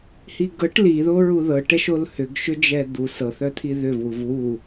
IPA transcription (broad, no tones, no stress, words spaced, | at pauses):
hiɡɤʈ liðo ɹuðɤʈɛʃol hʏɡʃʏd͡ʒɛ d̪u sɤθœt̪ʰi ðʏvwuv wu